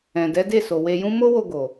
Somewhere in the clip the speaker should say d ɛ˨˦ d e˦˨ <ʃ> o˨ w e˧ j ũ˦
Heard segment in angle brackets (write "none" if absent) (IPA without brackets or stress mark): s